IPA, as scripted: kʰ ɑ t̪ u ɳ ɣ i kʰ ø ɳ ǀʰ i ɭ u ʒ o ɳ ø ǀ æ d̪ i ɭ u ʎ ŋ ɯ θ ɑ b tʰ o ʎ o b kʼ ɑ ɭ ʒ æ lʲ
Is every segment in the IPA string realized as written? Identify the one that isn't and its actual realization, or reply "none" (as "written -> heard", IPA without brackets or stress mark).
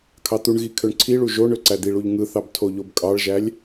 none